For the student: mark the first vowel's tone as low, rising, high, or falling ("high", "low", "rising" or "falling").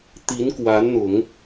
rising